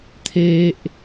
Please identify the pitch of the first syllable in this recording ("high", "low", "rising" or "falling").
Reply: high